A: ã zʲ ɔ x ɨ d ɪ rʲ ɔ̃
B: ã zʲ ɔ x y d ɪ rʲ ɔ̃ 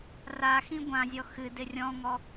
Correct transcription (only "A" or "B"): A